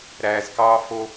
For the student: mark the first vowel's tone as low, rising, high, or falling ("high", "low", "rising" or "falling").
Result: low